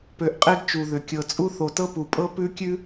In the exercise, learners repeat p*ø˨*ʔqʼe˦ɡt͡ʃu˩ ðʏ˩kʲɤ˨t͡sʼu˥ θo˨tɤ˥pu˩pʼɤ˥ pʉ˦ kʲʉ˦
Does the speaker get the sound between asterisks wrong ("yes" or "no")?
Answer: no